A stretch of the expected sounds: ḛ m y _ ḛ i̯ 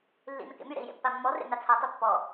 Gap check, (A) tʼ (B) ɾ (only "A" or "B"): B